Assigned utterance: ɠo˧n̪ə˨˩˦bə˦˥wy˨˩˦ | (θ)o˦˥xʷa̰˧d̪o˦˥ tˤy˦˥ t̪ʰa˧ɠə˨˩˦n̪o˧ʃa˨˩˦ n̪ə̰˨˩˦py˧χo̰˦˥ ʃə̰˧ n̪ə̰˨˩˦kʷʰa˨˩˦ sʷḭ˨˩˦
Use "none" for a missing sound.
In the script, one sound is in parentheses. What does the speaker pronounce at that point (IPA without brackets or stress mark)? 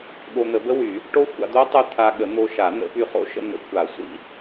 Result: ʈ